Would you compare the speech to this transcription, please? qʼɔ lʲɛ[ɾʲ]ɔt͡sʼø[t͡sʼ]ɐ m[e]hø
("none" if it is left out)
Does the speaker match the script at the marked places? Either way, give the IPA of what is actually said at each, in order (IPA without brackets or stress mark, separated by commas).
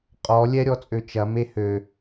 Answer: ɾʲ, t͡ʃ, e